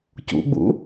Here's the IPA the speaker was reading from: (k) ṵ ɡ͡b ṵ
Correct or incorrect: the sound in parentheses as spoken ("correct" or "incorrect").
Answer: incorrect